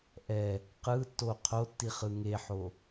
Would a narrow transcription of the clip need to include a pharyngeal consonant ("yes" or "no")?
yes